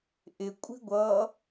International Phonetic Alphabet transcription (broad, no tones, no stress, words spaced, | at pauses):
ʔɪkʷʼi̤ ɡʷʌ